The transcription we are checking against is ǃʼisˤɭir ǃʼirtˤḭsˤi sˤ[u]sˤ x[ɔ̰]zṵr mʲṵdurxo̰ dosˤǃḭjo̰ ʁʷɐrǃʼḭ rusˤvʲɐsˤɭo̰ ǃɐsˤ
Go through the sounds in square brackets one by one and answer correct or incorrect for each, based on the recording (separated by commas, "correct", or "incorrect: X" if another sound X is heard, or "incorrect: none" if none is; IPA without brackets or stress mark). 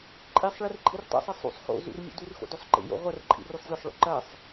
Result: incorrect: ṵ, incorrect: o̰